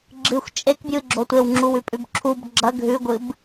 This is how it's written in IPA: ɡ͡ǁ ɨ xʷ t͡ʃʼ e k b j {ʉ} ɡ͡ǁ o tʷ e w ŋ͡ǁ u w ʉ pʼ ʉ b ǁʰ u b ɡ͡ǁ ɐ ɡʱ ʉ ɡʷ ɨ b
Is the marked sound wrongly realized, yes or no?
yes